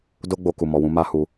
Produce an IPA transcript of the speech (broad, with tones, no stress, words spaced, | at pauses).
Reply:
do˦ɡ͡bo˧ ku˨mɔ˨wũ˨˦ ma˦hu˧